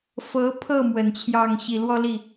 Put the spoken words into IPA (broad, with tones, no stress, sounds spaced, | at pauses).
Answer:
f ɤ˧˥ pʰ ɤ˥˩ m w ə˨˩ n t͡ɕʰ j ɑ˥˩ ŋ ɕ i˨˩ l w ɔ˥˧ l i˥˩